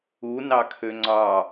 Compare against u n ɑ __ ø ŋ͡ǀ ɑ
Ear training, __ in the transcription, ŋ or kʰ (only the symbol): kʰ